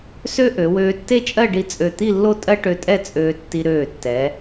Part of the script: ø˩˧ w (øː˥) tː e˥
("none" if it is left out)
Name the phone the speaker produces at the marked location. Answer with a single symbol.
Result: øː˧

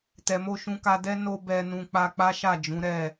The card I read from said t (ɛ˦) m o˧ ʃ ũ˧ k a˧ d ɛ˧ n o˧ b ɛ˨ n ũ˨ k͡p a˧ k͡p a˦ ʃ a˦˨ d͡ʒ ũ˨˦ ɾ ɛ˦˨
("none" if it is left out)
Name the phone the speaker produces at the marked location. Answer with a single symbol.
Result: ɛ˨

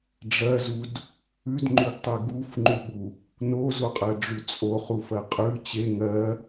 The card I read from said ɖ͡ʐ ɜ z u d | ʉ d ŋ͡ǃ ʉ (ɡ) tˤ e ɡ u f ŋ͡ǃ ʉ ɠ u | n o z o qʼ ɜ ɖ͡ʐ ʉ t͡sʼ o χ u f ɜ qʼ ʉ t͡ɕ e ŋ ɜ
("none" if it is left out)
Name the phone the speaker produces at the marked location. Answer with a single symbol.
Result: ɡ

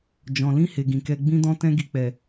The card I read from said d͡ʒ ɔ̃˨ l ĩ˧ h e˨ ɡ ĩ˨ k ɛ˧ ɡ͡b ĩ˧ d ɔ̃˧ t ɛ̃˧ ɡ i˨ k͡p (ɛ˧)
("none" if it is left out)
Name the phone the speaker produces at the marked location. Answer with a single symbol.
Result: ɛ˨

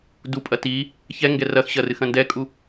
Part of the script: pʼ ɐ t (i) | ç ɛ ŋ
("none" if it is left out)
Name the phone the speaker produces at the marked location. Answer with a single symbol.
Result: i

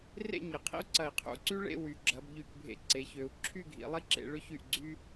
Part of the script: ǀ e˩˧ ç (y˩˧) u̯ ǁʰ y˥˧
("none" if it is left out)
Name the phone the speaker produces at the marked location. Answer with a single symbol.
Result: ø˩˧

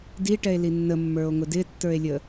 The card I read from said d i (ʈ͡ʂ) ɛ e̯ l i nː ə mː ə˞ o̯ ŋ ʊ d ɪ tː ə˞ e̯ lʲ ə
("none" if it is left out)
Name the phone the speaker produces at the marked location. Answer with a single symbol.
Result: ʈ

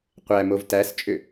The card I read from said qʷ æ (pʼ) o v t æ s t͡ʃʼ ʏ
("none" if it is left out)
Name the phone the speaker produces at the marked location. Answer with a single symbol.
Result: m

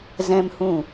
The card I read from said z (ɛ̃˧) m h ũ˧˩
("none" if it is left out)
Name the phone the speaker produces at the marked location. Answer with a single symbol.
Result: ɛ̃˧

